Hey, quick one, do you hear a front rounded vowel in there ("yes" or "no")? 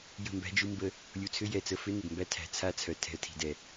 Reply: yes